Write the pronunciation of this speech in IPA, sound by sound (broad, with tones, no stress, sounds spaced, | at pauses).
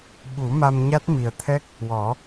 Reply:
ɓ u˨˩˦ m a˧ m ɲ a˦˥ t̚ m i˨˩ ə̯ t̪ʰ ɛ˦˥ k̚ | w ɔ˨˩˦